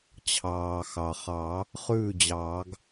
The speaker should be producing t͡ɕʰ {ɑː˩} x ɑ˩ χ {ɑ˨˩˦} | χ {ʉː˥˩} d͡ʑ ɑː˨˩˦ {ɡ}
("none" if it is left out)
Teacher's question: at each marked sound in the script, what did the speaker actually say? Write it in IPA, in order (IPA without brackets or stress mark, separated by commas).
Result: ɑː˩, ɑ˨˩˦, ʉː˥˩, ɡ